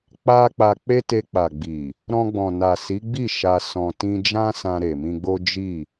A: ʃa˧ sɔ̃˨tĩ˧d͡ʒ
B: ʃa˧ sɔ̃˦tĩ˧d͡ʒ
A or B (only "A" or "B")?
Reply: A